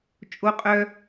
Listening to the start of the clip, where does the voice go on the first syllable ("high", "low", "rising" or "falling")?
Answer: high